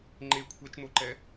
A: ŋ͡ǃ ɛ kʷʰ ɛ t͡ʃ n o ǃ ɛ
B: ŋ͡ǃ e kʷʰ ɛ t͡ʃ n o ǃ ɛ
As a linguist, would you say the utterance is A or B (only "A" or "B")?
B